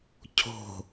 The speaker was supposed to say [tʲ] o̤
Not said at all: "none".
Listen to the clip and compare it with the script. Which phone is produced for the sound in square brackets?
cʰ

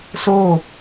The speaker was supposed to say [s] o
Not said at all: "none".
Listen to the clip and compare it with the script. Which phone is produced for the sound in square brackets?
s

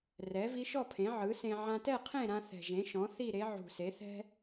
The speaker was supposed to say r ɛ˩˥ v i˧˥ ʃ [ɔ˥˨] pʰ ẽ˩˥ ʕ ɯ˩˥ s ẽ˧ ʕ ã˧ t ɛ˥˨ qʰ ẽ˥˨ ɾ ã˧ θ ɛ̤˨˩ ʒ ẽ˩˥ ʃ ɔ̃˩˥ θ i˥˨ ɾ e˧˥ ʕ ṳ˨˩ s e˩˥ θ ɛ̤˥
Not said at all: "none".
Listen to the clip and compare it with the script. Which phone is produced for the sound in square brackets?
ɔ˥˨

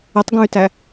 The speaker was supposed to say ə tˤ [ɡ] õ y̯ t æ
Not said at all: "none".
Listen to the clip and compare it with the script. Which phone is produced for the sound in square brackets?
ɡ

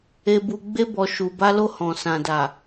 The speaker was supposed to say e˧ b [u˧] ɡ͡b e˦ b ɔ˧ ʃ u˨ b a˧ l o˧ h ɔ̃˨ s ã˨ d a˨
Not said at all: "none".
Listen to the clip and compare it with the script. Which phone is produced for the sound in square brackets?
u˧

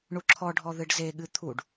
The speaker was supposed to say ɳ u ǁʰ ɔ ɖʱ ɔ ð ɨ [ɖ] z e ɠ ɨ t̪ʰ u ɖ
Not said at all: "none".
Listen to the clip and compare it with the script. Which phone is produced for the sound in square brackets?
ɖ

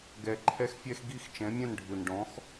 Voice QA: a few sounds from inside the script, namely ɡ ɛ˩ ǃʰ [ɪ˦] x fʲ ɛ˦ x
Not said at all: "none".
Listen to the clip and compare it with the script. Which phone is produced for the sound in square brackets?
ɛ˦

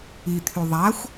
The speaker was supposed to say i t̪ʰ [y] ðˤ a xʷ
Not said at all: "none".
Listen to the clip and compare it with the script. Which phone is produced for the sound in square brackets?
y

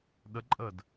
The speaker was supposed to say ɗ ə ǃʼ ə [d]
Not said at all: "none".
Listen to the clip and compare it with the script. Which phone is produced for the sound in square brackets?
d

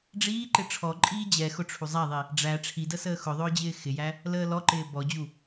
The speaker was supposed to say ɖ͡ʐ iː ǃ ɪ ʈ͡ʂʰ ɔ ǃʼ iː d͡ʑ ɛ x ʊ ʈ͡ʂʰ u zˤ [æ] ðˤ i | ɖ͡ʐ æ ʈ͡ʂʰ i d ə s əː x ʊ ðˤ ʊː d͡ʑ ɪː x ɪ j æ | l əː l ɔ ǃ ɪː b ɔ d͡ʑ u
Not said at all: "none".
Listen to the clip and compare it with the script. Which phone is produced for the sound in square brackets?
æ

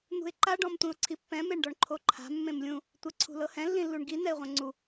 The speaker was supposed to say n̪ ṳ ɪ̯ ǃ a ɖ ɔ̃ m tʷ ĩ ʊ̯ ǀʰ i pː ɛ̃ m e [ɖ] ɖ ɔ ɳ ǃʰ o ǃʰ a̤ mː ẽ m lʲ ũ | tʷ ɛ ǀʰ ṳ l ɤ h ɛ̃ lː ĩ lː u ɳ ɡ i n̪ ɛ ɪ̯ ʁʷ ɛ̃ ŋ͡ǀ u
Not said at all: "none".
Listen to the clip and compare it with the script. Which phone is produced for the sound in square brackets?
ɳ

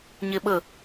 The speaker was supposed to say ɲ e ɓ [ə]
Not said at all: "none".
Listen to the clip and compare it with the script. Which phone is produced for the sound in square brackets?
ə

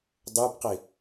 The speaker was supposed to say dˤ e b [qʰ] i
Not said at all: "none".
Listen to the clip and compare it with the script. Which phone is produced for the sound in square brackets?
q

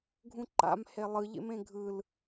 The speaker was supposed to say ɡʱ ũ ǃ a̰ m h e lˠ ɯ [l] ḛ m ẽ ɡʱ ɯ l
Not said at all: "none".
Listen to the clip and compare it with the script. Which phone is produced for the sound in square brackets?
ʎ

